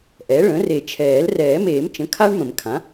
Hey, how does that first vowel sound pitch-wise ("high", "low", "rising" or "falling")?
rising